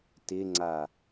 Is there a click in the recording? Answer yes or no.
yes